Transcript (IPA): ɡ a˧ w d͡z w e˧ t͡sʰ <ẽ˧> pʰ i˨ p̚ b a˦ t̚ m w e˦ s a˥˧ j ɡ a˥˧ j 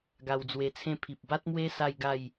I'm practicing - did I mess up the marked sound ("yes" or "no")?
yes